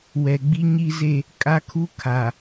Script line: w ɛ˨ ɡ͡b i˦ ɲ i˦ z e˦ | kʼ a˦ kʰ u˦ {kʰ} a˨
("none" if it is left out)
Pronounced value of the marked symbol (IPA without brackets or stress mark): kʰ